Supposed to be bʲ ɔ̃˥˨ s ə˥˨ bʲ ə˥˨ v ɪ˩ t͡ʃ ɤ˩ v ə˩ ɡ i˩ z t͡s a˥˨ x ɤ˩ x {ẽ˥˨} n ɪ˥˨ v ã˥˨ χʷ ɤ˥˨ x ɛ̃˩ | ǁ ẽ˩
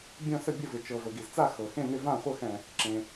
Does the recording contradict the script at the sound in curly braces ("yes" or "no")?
no